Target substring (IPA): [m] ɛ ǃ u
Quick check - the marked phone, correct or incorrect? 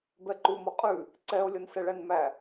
incorrect